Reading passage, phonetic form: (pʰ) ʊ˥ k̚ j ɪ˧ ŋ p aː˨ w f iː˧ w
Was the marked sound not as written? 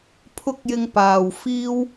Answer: no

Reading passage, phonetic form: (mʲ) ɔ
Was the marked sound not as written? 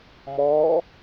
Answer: yes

